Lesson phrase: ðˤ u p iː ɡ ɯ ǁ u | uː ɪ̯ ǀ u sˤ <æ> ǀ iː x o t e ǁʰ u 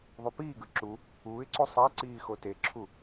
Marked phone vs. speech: correct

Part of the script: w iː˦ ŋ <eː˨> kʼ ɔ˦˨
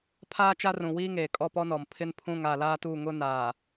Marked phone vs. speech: correct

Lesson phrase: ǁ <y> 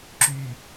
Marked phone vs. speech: correct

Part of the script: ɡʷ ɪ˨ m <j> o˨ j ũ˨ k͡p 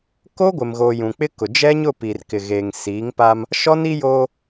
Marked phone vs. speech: incorrect: ɣ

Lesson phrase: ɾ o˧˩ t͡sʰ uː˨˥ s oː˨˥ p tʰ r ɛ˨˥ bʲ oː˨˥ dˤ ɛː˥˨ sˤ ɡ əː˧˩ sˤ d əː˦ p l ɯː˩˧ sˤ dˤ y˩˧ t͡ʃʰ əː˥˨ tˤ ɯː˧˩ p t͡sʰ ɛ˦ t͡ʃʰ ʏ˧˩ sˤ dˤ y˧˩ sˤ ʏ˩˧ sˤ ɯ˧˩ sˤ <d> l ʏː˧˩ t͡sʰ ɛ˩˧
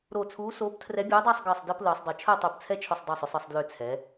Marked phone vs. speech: correct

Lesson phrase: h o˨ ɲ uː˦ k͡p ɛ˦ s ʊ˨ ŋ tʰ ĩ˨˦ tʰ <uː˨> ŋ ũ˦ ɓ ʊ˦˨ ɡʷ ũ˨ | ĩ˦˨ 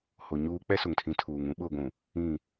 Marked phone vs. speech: correct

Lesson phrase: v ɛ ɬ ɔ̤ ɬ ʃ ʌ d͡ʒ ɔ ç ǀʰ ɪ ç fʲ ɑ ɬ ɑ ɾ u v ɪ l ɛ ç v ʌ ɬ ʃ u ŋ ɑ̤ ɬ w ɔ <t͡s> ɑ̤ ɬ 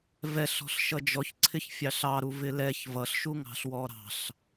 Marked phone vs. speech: incorrect: ɾ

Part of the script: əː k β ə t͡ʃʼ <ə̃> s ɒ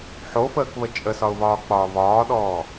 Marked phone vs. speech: incorrect: ə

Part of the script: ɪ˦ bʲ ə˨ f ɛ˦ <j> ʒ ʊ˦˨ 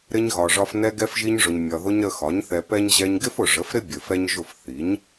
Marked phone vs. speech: incorrect: ɲ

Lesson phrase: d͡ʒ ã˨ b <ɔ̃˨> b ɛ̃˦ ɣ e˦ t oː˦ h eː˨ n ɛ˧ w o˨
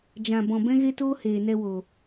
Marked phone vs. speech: correct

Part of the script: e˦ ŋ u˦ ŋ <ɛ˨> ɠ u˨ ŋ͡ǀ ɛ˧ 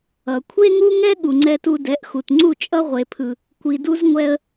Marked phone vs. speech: incorrect: ɛ˦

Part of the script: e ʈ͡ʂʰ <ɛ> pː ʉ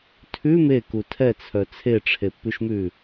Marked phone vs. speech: incorrect: e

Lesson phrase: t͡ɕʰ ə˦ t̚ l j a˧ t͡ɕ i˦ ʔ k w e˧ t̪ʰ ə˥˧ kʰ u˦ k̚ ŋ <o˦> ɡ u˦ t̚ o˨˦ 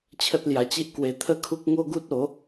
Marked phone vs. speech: correct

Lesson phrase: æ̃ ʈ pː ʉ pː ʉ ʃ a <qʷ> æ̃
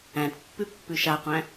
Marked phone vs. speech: correct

